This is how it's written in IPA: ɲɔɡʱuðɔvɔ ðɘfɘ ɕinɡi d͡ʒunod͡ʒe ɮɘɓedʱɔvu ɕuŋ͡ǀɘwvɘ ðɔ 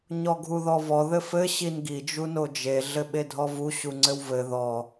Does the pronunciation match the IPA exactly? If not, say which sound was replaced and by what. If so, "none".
none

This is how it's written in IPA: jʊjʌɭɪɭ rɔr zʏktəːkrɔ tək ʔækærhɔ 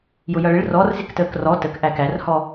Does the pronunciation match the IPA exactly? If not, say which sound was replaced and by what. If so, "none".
ʏ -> ɪ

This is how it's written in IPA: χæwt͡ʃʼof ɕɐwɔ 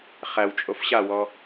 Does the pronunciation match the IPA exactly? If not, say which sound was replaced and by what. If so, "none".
ɐ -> a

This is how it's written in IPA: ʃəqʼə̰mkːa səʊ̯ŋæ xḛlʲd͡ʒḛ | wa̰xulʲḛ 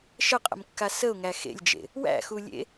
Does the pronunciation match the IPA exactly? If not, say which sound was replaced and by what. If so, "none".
a̰ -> æ̰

